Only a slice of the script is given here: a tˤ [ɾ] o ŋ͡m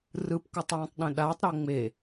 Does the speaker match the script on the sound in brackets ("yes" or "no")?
yes